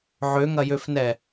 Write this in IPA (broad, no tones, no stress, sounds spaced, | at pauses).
ʕ ø ŋ ɐ j ø f n ɛ